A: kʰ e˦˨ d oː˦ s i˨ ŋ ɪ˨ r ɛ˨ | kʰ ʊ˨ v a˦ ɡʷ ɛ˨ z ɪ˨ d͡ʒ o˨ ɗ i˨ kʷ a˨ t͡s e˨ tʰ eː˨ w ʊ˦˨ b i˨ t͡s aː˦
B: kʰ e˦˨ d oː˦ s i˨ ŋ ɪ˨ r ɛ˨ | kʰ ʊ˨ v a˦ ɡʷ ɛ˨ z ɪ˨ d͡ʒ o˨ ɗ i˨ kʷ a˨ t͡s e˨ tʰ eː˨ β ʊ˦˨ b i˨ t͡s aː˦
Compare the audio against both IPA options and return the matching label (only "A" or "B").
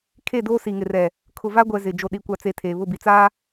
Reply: B